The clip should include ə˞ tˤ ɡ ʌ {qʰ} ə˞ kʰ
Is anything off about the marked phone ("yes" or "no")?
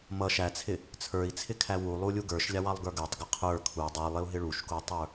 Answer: no